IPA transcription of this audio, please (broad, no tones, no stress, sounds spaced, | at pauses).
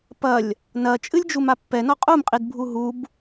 p ɐ lʲ | n ɐ t͡ʃʼ ɨ lʲ d͡ʒ u m a pː ɛ n ɔ qʼ u m qʼ i d bʱ u ɦ u b